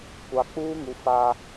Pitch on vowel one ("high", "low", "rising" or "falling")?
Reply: low